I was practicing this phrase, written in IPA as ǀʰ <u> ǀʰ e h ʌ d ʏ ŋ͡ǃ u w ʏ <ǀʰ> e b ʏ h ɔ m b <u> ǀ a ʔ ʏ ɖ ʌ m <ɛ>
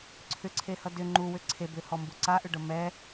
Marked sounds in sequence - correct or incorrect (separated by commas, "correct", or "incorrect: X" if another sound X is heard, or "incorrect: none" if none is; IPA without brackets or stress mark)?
incorrect: ʏ, correct, correct, correct